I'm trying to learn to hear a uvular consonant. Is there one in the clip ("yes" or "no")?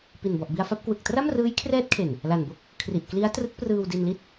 no